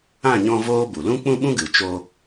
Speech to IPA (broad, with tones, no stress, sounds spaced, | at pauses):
ã˦˨ ɲ ɔ̃˧ v oː˦ b u˨ l ũ˦ k͡p ũ˦ ɓ ũ˦ ɡ ɨ˨ t͡ʃ o˧